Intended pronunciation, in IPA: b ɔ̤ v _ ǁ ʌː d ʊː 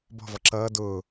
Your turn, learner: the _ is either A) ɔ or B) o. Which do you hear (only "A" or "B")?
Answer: A